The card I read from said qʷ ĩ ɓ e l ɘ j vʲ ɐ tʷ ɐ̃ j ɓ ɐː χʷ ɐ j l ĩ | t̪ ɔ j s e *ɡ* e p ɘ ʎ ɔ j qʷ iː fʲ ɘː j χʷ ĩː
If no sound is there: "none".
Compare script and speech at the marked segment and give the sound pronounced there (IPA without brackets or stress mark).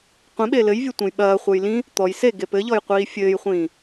ɡ